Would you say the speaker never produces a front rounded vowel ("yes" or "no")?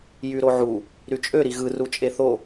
no